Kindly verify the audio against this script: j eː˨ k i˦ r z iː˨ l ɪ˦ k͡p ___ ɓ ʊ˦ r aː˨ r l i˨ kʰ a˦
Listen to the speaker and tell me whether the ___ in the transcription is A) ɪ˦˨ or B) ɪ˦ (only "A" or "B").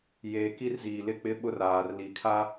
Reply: B